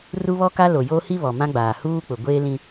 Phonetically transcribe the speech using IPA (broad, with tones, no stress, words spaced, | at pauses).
ru˦βɔ˦ka˦ lo˨jo˦hi˦ βɔ˨mã˦ɡ͡baː˨ huː˦ k͡pʊ˨ɡʷeː˦lĩ˦